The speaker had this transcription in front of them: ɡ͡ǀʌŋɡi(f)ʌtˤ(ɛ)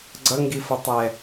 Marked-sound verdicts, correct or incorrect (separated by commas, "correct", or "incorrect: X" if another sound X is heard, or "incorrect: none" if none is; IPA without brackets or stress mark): correct, correct